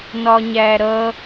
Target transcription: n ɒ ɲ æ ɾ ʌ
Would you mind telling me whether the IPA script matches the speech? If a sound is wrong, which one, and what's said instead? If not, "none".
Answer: none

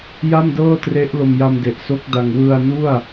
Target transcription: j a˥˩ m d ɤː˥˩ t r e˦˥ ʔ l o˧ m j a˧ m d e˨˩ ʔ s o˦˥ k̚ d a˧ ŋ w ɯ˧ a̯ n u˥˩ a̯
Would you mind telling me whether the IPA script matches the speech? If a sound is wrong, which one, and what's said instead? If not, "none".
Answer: none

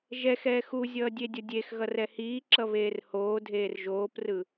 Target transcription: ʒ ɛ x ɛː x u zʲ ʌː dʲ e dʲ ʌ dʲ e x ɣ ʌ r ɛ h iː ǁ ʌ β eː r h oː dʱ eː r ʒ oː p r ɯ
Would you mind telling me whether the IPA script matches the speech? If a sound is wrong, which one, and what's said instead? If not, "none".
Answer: none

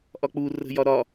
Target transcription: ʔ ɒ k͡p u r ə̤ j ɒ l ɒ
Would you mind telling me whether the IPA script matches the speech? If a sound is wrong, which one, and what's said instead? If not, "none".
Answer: l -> ɾ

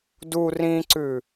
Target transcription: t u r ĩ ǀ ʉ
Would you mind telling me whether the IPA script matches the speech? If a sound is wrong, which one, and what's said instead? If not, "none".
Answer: t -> d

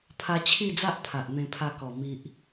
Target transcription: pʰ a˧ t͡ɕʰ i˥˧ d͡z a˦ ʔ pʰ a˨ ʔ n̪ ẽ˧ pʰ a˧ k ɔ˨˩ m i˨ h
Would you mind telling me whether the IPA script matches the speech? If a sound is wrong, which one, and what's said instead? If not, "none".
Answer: h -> ʔ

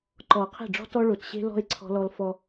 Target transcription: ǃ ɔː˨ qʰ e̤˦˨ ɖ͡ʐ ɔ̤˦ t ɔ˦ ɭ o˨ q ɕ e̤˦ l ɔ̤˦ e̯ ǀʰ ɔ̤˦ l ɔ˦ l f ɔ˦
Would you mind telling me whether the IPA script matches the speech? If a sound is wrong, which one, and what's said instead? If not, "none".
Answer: q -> t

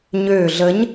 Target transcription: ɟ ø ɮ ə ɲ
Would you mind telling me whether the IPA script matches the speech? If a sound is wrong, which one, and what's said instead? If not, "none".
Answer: ɟ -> ɲ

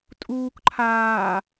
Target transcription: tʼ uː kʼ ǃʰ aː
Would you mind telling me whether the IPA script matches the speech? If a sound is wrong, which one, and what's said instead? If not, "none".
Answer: kʼ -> k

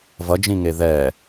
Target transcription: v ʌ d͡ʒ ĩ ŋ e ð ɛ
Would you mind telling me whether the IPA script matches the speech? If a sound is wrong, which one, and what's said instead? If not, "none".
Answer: none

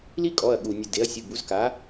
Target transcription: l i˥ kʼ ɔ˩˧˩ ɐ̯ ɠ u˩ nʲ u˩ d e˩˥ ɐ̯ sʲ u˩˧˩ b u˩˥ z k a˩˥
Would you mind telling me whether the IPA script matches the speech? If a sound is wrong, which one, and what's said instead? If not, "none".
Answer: none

